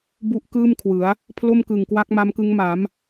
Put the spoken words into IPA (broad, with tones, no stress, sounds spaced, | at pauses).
b u˦˥ ʔ k ɯː˥˩ m kʰ w ɯ˩˦ a̯ | pʰ l o˥˩ m k ɯ˨˩ ŋ k w a˦˥ k̚ m a˦˥ m k ɯ˦˥ ŋ m a˩˦ m